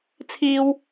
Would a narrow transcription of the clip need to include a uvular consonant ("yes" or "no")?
no